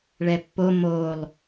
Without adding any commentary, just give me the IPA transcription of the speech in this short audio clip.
ɭɛpːo molˠ

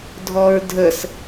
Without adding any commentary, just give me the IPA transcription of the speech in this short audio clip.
dʱɔɹdʱəs

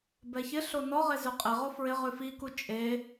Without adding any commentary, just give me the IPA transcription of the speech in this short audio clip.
bɛçɪɬo nɔʁe zʉqʼɪʁo fɹɪ ʁʉfiku t͡ʃʼe

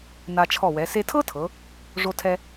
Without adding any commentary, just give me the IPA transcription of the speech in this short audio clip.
na˧t͡ʃʰɔ˧˩wɛ˩˧ se˧tʰɤ˥tʰɤ˩˧ | ʐo˧tʰɛ˧

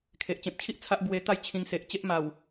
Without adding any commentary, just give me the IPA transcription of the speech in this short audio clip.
kʰe˨ʔ t͡ɕẽ˨p̚t͡ɕʰi˦ʔ t͡sʰa˦ʔ bwe˧t̪a˥˧j t͡ɕʰĩ˧ŋse˨ʔ t͡ɕe˦ʔma˨˩w

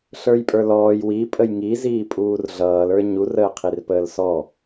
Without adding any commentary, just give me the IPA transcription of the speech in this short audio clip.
ɬə˞jpʼə˞lɔːj wi pʼəjŋi ziːpʼuːrɮʌːl ə˞ɲur əːqʰirpəːlsɔ

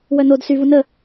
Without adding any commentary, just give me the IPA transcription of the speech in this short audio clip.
wœnod syvu nə

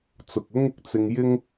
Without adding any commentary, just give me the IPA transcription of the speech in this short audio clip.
t͡sʊ˨k̚ʊ˥ŋɪ˨k̚ t͡sɪ˧ŋjɪ˥ŋ

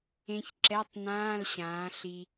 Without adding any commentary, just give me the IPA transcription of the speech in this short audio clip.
ẽ˧ç ǁɛ˧˥˧tˤnãː˧˥˧l ɕãː˨˥ ɬi˧

